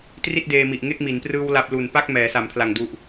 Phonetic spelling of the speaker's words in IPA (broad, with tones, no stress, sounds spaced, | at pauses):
t r i˥˩ t̚ d eː˧ m i˨˩ ʔ ŋ e˥˩ k̚ m i˩˦ n p r ɯː˧ w l a˦˥ p̚ l u˨˩ n p a˥˩ k̚ m ɛː˩˦ s a˩˦ m pʰ l a˨˩ ŋ d u˨˩ ʔ